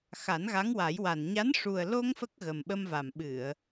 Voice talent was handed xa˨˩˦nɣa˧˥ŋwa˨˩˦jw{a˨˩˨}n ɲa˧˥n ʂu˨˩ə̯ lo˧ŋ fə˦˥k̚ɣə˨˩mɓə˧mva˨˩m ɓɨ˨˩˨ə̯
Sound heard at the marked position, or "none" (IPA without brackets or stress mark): a˨˩